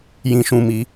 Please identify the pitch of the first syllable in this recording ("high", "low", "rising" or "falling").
high